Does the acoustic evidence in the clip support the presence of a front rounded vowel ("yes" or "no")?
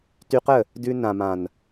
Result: yes